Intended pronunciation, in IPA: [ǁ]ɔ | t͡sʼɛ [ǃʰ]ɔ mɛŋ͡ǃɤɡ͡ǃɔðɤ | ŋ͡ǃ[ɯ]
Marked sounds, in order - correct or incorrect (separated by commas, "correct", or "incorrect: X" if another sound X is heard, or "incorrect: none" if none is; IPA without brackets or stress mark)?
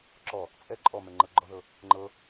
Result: correct, incorrect: ǃʼ, incorrect: ɤ